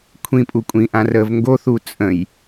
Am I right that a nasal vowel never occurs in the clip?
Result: no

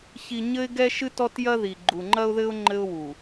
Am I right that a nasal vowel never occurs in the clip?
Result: yes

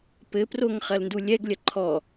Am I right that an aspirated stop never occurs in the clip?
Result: no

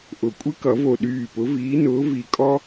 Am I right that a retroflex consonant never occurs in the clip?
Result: yes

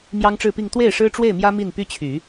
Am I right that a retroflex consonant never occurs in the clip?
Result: no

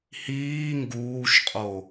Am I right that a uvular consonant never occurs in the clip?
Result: no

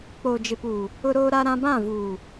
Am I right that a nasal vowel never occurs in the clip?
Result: no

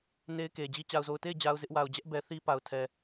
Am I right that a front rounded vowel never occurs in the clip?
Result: yes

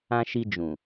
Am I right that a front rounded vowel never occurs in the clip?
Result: yes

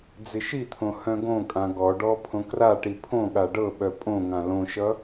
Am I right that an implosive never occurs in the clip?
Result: no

